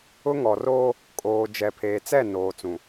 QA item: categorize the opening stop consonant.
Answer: ejective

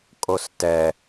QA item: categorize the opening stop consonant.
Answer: ejective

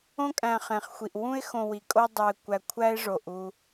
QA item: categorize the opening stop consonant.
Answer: ejective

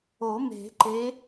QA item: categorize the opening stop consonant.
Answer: click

